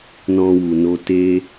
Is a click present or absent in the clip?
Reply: absent